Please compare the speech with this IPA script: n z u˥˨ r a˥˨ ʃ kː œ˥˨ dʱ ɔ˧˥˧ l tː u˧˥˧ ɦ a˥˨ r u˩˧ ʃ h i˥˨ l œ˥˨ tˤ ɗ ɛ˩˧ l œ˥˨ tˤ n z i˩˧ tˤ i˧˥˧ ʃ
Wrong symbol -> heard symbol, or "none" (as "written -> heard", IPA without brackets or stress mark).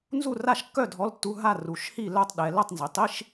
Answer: none